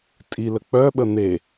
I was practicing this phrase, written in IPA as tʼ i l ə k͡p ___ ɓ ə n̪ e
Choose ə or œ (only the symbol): œ